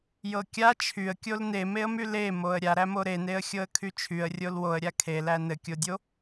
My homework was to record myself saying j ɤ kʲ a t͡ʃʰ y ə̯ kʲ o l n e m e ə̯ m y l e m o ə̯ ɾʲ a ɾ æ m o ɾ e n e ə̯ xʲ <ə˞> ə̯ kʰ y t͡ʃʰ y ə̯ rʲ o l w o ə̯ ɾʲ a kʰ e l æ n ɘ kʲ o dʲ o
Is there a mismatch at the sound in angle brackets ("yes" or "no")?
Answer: yes